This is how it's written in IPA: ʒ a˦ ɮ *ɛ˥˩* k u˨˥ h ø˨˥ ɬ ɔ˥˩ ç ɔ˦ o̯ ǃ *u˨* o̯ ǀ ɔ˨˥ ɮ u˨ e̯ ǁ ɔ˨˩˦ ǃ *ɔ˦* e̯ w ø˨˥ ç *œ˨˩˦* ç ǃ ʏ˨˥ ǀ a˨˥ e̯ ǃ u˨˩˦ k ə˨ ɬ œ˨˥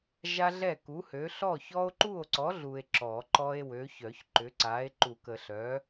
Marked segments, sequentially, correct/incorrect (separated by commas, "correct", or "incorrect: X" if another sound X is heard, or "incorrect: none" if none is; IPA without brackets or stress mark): correct, incorrect: u˥˩, correct, correct